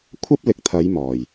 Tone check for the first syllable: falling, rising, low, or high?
high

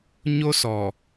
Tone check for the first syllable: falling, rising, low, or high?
high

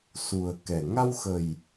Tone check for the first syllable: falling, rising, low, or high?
low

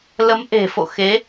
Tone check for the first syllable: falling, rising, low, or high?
rising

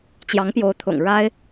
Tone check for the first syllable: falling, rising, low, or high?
rising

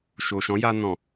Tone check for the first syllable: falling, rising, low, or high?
low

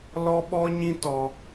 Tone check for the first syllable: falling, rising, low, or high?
high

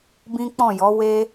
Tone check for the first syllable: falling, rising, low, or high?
high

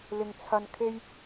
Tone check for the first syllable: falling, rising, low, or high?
low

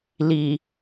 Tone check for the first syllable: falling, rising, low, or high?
low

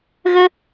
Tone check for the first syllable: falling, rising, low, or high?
high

